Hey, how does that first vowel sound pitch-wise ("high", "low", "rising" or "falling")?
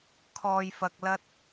low